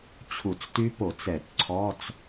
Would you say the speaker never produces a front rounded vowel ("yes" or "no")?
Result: no